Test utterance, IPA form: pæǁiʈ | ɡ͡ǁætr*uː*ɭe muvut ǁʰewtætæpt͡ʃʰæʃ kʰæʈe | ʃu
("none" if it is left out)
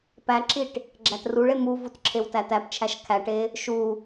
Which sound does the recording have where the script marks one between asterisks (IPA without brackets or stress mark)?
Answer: u